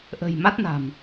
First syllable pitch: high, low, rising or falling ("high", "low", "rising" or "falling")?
low